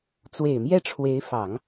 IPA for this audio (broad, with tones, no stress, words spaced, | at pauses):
t͡swe˨˩ɪ̯mjɛ˥˩ʈ͡ʂʰwe˧˥ɪ̯ fɑ˨˩˦ŋ